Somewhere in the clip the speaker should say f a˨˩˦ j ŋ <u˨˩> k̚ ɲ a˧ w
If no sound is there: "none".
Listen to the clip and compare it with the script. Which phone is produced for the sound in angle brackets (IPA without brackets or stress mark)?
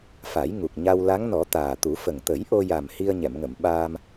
u˨˩